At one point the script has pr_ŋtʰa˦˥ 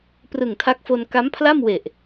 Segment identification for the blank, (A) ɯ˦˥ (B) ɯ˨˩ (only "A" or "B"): B